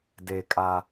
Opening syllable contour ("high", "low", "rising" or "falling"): high